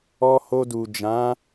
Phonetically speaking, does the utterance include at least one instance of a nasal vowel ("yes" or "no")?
yes